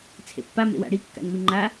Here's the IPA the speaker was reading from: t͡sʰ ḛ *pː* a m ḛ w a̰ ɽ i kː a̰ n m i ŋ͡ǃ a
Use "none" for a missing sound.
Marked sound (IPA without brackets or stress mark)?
pː